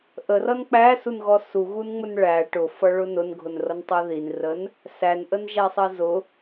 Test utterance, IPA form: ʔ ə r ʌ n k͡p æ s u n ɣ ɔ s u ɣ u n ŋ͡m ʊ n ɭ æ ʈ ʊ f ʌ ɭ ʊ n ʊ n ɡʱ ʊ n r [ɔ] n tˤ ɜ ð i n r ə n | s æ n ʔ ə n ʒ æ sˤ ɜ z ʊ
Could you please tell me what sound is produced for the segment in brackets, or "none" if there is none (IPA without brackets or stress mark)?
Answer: ʌ